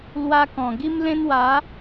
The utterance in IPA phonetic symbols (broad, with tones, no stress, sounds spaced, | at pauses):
l w a˦ k ɔ̃˨˩ ɡ i˦ m l ẽ˦ n w a˨˦